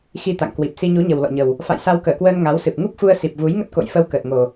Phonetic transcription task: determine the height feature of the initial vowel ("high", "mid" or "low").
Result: high